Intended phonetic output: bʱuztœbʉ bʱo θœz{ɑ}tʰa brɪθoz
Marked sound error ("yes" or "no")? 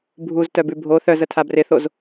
yes